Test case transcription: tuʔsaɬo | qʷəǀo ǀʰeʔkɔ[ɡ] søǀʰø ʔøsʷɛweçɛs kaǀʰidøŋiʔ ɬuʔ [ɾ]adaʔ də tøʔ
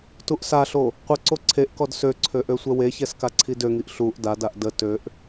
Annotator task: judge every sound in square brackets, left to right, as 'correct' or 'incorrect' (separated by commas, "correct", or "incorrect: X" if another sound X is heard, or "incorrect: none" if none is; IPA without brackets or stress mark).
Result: incorrect: d, incorrect: d